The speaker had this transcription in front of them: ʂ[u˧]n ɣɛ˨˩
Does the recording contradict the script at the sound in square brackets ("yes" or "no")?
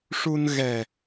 no